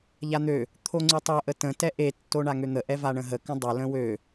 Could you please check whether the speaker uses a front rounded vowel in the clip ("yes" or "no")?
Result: yes